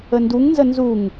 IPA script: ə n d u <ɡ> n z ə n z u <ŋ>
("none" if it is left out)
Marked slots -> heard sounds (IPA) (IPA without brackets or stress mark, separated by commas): ŋ, ŋ